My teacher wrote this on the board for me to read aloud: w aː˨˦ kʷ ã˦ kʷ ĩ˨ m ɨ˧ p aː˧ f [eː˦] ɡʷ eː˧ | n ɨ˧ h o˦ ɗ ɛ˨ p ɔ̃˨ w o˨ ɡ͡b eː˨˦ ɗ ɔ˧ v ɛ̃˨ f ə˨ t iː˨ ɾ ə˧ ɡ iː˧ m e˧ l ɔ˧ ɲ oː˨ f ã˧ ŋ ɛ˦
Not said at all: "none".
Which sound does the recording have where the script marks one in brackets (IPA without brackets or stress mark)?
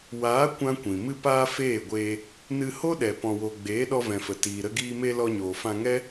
eː˦˨